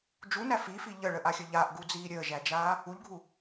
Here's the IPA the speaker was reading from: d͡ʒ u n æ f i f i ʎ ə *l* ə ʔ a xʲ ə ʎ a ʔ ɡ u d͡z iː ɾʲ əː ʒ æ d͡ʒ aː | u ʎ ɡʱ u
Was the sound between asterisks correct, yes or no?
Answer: no